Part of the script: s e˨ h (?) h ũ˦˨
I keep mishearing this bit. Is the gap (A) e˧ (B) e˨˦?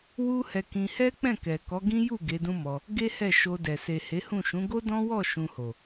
B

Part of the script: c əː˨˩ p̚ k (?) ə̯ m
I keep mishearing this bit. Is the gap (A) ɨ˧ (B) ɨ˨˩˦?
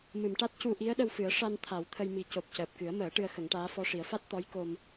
B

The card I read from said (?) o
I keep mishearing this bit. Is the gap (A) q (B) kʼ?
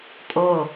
B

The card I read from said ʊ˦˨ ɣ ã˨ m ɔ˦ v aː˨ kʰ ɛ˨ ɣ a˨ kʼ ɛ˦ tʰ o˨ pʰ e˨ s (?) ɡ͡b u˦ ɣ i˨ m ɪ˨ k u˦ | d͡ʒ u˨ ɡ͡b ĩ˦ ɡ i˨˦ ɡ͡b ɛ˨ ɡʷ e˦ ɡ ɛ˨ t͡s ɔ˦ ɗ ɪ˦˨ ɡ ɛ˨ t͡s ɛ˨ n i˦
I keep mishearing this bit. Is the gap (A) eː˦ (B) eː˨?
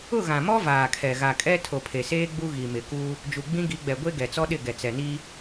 A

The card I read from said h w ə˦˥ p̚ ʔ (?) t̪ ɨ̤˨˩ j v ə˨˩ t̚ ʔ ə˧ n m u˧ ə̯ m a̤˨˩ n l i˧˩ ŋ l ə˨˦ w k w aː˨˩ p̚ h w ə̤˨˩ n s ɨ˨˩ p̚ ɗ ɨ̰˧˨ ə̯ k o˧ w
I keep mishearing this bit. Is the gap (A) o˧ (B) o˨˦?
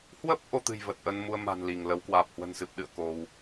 B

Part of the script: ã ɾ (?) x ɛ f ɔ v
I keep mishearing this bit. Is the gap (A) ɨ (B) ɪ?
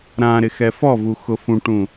B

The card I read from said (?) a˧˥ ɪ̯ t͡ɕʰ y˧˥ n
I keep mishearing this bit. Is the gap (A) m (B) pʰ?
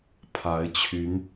B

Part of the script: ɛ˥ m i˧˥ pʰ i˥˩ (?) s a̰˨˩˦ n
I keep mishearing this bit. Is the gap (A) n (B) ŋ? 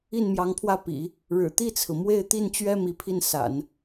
A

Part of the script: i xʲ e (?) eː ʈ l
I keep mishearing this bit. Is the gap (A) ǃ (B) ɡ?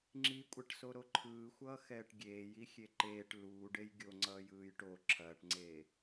A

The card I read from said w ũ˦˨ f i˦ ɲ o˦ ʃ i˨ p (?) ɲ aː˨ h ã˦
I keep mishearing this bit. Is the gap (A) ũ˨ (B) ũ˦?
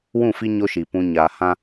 A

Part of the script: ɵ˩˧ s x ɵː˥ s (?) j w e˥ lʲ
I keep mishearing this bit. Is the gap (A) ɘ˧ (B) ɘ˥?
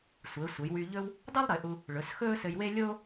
A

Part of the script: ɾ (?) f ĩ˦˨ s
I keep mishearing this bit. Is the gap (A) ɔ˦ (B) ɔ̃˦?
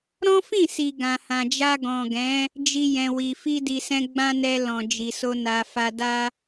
B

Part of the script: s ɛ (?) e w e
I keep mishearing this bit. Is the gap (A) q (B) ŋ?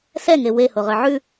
B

